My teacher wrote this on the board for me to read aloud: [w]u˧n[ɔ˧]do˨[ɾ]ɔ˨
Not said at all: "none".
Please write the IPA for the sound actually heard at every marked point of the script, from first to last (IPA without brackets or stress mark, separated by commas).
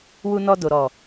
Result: w, ɔ˧, ɾ